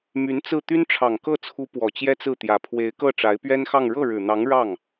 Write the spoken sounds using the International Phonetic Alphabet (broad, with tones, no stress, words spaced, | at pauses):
my˧˥nt͡sɹ̩˥˩ t̪y˥nʈ͡ʂʰɑ˨˩ŋ kɤ˥˩t͡sʰu˧˥ pwɔ˨˩t͡ɕjɛ˥t͡sɹ̩˥˩t̪jä˨˩ pʰwe˧˥ɪ̯kɤ˥˩ ʈ͡ʂa˧˥ɪ̯pɥɛ˥nxɑ˥˧ŋ ɻɤ˥˩ɻɻ̩˨˩n̪ɑ˧˥ŋ ɻɑ˥˩ŋ